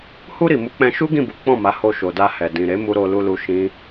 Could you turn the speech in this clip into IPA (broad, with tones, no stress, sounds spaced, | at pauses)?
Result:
h u˧ ɾ i˨ m u˨˦ k͡p ɛ̃˧ ʃ u˦ ɡ ĩ˦˨ b u˨˦ k͡p ɔ̃˦˨ m a˨˦ h o˧ ʃ o˨ d a˧ h ɛ˨ d ĩ˨ ɾ e˨˦ m u˧ ɾ o˧ l u˧ l u˧ ʃ ĩ˦